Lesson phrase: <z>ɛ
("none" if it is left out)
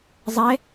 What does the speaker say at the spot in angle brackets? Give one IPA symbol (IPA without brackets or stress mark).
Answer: zˤ